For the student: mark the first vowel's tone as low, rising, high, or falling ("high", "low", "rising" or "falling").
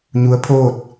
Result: rising